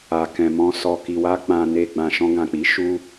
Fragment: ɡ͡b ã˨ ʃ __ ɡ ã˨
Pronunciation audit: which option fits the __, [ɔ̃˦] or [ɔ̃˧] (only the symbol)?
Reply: ɔ̃˧